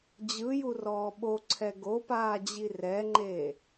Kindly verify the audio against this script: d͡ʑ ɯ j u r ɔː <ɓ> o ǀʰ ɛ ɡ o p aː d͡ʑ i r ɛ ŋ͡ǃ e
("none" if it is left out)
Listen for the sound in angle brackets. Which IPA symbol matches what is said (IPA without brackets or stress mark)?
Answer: ɓ